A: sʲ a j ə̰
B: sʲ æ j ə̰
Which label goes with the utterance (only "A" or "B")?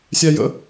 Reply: B